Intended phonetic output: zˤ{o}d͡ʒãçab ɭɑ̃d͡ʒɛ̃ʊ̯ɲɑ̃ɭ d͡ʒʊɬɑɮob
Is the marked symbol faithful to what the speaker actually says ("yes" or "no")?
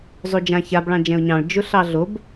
yes